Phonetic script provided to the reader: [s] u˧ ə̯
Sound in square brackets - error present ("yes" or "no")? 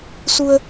no